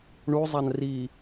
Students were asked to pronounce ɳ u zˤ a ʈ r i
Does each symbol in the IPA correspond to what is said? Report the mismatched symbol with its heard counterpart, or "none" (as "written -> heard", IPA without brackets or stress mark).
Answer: ʈ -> n